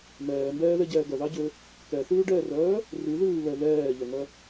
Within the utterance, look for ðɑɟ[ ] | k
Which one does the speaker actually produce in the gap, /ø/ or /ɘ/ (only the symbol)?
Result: ø